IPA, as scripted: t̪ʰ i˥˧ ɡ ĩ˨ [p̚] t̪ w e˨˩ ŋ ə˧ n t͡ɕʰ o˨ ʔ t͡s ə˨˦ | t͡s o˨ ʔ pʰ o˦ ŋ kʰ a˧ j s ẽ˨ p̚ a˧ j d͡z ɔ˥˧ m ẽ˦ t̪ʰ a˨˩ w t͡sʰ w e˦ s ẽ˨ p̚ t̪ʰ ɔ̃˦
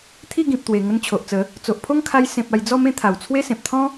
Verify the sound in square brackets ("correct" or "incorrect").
correct